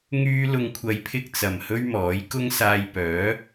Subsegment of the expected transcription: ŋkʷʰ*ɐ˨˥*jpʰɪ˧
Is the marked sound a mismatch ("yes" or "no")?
yes